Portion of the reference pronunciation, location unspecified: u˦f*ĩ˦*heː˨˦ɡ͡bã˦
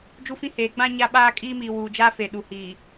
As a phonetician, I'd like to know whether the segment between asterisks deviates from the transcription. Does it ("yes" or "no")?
no